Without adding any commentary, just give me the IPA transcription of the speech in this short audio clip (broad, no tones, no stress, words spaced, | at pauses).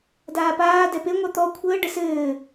daːpaː dɛpe ŋʷat̪ɔ kʷʰəː ɖəsɘː